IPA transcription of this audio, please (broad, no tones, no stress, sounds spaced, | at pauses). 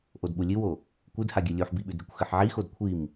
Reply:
ʔ o d ɓ u lʲ ɨ w o | kʷ ɨ d h a ɡʲ ɨ lʲ u ħ b i ɓ ʉ d ɾʲ ʉ kʷ x ɨ ħ ʕ i x o d kʷʰ i m